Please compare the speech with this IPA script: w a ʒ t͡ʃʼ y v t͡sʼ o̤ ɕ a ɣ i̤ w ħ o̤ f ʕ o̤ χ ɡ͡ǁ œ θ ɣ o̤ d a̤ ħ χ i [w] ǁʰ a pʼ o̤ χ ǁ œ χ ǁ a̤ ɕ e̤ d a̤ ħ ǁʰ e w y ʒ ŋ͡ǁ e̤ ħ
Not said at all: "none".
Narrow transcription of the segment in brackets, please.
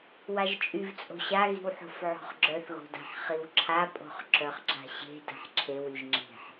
w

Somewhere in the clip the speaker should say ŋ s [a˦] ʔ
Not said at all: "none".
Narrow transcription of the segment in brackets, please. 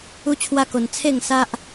a˦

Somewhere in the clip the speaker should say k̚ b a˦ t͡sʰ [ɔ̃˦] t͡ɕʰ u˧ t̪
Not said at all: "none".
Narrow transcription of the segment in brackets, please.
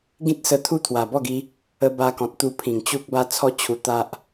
ɔ˦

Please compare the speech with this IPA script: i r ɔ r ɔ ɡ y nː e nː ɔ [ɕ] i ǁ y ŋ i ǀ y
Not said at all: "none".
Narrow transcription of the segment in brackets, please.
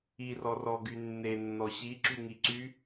ɕ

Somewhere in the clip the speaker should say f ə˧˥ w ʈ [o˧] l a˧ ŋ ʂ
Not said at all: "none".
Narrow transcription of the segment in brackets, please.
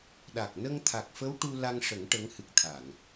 u˧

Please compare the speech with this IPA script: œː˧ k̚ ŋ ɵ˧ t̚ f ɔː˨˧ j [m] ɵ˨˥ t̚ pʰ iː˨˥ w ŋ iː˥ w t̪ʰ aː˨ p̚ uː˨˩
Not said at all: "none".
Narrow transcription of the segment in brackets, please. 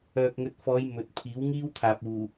m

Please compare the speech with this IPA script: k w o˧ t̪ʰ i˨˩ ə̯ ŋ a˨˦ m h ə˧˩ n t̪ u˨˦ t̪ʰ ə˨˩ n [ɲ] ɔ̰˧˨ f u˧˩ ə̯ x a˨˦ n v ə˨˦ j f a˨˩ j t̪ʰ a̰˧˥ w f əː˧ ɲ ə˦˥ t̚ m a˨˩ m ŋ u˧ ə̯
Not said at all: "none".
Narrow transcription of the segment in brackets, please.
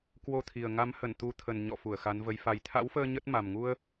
ɲ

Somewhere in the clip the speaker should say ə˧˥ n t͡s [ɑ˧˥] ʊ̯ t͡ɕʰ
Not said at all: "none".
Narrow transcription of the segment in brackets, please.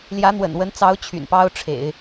ɑ˧˥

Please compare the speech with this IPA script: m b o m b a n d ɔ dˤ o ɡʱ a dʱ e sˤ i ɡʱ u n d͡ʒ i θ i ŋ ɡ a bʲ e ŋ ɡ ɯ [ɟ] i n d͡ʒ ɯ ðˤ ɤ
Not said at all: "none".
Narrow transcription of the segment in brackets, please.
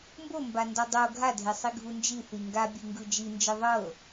d͡ʒ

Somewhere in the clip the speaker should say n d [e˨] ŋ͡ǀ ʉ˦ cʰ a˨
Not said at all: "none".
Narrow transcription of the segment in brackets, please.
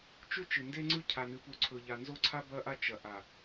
e˦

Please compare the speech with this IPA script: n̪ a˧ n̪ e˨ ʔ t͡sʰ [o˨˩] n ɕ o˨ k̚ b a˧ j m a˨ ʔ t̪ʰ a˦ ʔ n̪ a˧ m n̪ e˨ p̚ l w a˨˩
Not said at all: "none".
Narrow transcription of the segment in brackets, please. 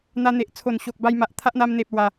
o˨˩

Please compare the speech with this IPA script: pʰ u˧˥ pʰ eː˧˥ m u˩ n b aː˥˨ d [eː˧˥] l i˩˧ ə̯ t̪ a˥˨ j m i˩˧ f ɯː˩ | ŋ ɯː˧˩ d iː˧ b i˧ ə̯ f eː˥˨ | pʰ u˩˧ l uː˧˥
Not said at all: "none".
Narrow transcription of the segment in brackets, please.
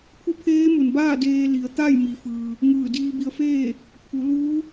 eː˧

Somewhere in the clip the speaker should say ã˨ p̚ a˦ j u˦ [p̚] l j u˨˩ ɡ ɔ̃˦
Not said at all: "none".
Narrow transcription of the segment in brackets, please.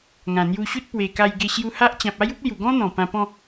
p̚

